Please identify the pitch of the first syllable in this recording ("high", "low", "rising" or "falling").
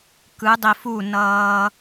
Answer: rising